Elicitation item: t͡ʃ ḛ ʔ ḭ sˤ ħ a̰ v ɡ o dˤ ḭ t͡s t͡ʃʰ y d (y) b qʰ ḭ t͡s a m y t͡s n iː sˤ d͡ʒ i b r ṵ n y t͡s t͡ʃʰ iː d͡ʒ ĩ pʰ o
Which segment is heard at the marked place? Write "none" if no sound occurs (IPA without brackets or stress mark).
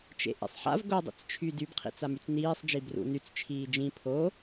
y